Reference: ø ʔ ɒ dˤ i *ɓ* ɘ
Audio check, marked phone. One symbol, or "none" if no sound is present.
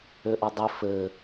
f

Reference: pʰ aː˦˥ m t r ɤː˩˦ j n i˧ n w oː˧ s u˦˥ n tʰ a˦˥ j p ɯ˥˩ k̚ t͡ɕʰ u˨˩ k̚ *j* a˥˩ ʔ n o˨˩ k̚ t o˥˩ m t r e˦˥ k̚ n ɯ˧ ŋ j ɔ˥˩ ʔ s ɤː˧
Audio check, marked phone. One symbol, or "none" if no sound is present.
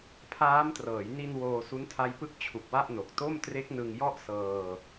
w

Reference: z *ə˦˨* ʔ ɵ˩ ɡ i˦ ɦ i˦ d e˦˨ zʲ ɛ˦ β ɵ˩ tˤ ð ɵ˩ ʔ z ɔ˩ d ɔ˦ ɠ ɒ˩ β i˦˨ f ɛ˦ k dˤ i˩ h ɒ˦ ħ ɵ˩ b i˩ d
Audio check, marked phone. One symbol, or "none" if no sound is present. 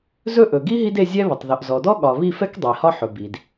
ɵ˦˨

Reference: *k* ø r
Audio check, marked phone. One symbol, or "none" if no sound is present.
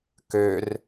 k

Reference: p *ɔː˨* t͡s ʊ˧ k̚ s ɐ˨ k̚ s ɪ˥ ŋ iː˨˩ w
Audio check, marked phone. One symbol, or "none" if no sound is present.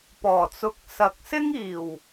ɔː˨˩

